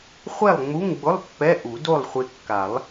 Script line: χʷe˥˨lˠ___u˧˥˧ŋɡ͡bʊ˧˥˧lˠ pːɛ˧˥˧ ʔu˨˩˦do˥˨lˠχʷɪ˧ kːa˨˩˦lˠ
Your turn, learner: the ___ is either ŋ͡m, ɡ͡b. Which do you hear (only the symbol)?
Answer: ŋ͡m